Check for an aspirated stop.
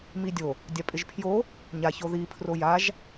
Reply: present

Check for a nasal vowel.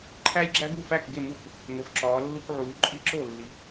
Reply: absent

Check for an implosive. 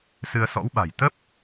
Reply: present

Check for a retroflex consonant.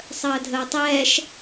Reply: absent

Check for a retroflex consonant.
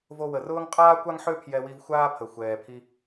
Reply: absent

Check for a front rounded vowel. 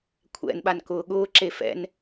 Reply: absent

